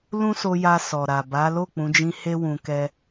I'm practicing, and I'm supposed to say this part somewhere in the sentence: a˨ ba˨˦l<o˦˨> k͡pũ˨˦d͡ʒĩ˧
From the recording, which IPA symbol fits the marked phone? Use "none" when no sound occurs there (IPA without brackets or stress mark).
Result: o˦˨